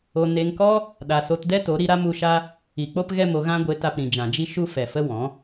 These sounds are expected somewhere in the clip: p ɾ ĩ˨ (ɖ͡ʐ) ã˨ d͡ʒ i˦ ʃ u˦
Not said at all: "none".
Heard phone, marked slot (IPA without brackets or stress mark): d͡ʒ